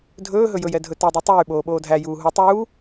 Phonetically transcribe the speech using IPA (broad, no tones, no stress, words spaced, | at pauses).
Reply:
dʱɵː ɦɵjɵjɛ dʱɵtɛdˤo tˤyːɓoː ɓoːdʱæjuː ɦu tˤuː